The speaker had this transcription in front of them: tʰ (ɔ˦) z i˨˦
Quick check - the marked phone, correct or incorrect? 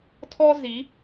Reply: correct